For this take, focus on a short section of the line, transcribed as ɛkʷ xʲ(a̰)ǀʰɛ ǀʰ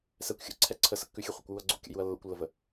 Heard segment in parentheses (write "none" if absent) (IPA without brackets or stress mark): ə̰